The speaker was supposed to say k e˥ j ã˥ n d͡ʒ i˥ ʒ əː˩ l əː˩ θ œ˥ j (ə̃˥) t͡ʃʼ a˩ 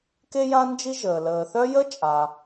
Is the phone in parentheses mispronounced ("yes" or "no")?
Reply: yes